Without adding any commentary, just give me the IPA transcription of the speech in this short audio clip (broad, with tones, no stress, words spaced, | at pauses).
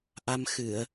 ʔa˧mxɨ˧˩˨ə̯